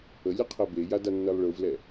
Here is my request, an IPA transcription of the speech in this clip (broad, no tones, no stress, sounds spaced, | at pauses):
ə lʲ ə qʰ ɜ b e j a d a nː ɜ lˠ ɭ ɯ v l ɛ